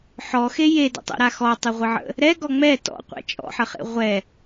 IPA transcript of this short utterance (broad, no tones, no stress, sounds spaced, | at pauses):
ħ ɔ x e j e d ə̰ tˤ ḛ ɾ a x ɔ tˤ ɯ ʁʷ ə ʕ ə̰ | ɾ ɛ ɡ ɔ ŋ͡m ɛ t ɔ̰ qʷ ɛ̰ t͡ʃʼ ɔ̰ ħ ə χ ḛ ʁʷ ɛ